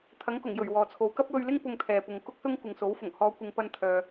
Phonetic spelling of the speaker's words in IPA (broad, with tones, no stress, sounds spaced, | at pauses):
t̪ʰ ɐ˨˥ ŋ k ʊ˨˩ ŋ j ɵ˨˩ ɥ w ɔː˨ t͡sʰ o˨ w k ɐ˥ p̚ w ɵ˧ ɥ l ɪ˥ ŋ p ʊ˧ ŋ t̪ʰ ɛː˧ p ʊ˧ ŋ k ʊ˥ k̚ s ʊ˥ ŋ kʷ ɪ˨ ŋ s o˨˥ w f ʊ˨˩ ŋ h ɔː˨˧ kʷ ɪ˨ ŋ p ɐ˧ n t̪ʰ œː˨